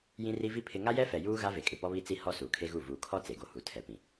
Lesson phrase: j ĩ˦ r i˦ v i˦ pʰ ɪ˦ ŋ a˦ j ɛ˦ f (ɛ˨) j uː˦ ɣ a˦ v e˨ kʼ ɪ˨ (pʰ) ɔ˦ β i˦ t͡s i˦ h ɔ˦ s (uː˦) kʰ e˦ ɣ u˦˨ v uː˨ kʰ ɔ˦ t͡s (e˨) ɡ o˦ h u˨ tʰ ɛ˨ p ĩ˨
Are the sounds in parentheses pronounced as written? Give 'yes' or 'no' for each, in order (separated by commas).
yes, no, no, yes